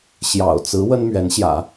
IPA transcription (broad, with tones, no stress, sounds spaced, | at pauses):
ɕ j ɑ̰˨˩ ʊ̯ t͡s ɹ̩˧˥ w ə˥ n m ɥ ɛ˧˥ n ɕ j ä̰˨˩˦